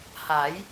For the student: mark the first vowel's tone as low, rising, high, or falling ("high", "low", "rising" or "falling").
rising